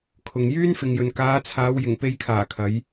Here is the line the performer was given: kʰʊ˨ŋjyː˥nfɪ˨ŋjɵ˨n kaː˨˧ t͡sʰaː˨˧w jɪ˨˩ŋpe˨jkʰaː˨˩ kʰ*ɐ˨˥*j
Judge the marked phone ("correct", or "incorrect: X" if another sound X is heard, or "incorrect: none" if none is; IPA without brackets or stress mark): correct